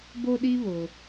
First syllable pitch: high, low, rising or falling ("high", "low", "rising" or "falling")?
high